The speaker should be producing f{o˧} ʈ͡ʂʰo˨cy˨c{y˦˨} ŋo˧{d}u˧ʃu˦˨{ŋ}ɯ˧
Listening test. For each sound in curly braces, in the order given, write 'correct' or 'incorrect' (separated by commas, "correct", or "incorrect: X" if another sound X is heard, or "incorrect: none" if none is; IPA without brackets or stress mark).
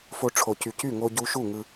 correct, correct, incorrect: ɟ, correct